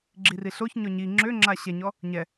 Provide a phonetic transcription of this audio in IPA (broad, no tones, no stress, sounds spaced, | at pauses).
ɡ͡ǁ i r i ɬ o ç ɲ ɔ ɲ i ŋ͡ǁ ø ŋ͡ǁ a ɕ ɛ ɲ ɔ | ɲ ɛ